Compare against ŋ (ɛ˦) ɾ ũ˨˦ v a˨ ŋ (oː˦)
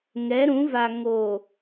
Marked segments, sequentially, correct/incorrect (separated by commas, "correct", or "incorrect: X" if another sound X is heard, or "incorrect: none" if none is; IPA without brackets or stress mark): incorrect: ɛ˨˦, incorrect: oː˨